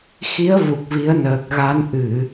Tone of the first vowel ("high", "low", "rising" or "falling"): rising